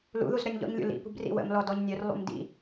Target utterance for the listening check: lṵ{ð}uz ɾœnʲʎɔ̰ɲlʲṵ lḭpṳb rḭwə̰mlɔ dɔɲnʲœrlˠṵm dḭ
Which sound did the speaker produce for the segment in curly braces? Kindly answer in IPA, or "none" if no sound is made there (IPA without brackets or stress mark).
ð